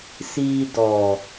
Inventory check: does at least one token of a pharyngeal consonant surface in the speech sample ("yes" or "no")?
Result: no